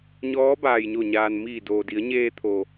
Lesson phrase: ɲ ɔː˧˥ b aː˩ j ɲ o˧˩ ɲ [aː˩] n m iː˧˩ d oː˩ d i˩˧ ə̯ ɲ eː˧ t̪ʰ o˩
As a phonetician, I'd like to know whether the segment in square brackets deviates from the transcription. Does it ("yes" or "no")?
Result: no